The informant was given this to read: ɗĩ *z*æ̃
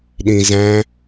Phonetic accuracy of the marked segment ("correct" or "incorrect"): correct